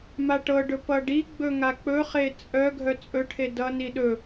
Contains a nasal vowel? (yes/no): no